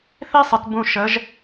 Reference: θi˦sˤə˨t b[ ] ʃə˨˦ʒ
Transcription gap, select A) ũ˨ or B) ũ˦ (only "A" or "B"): A